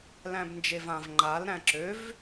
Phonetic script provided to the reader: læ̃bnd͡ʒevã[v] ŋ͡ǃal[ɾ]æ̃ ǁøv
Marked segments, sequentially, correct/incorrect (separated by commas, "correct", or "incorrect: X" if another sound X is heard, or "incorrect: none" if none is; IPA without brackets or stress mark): correct, correct